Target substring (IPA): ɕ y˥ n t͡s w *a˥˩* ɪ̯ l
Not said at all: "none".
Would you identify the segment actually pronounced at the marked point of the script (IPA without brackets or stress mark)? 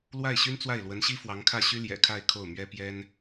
a˥˩